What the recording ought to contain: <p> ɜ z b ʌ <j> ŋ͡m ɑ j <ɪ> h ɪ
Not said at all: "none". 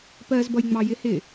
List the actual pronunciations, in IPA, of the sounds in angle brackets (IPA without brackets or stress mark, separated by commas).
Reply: p, j, ɪ